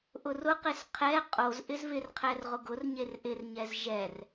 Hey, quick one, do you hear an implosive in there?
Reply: no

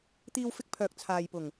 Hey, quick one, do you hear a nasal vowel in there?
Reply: no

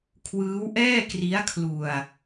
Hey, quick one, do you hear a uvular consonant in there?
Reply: no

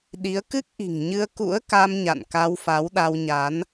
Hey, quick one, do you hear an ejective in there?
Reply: no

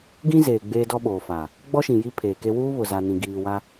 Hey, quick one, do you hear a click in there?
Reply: no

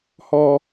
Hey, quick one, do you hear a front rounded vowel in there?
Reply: no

